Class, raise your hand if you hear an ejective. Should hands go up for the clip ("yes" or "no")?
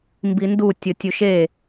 no